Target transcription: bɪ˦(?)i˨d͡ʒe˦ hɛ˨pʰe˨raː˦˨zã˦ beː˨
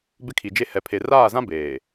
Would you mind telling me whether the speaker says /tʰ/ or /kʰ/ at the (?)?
kʰ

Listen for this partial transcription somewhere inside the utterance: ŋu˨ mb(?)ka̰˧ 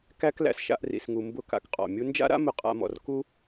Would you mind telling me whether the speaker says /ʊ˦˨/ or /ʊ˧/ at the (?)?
ʊ˦˨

